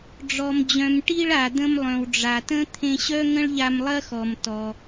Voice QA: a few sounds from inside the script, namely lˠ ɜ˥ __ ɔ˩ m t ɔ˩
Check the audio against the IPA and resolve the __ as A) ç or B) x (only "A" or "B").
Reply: B